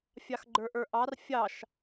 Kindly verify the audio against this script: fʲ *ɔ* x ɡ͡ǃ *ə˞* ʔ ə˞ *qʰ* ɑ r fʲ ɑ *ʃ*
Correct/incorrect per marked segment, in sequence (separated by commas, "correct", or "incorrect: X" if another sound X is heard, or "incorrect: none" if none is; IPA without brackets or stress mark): incorrect: ɑ, correct, incorrect: ʔ, correct